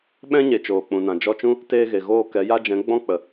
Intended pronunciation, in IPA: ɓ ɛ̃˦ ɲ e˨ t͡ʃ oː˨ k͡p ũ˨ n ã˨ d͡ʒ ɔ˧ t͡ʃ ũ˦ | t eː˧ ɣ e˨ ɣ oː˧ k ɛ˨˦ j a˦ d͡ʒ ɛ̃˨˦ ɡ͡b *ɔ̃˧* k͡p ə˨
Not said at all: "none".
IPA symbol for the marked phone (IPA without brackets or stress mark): ɔ̃˦